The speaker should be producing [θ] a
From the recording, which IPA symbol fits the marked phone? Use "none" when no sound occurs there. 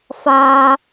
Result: f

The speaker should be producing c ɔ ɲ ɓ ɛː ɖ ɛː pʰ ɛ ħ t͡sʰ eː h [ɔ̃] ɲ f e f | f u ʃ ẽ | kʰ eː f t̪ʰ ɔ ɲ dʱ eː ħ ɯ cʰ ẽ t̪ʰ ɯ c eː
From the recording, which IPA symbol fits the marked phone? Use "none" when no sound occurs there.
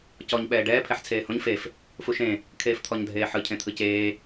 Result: õ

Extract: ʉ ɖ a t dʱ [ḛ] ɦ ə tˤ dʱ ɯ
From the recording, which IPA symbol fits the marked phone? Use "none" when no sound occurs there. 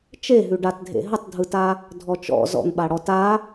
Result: ḛ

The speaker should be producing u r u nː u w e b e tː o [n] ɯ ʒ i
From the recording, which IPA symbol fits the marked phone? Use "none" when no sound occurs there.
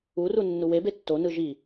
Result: n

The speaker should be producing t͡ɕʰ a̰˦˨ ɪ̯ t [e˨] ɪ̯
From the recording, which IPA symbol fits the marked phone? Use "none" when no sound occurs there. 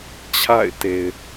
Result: e˨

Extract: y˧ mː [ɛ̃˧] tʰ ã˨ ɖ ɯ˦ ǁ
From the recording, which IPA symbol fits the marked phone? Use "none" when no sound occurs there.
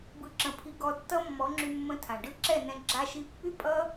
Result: ə̃˧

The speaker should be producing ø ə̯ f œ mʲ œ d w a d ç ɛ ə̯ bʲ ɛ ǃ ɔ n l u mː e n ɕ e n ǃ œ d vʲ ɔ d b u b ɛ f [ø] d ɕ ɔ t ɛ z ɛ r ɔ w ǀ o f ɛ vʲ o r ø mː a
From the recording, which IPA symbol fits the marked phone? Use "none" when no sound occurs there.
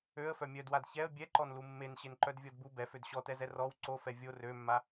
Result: ø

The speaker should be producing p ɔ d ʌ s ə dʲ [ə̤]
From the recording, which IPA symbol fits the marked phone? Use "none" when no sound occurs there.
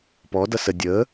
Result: ə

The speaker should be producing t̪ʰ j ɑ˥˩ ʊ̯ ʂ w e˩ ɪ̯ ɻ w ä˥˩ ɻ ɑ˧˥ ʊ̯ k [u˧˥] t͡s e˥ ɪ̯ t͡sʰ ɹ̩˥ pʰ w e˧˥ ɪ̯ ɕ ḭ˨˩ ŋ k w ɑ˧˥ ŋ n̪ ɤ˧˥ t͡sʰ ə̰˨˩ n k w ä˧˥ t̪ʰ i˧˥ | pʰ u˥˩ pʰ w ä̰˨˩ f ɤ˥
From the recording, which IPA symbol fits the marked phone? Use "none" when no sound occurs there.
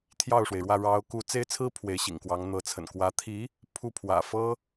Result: u˧˥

